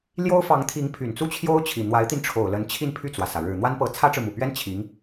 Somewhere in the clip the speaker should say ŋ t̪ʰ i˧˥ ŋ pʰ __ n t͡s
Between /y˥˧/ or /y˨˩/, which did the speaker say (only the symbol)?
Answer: y˨˩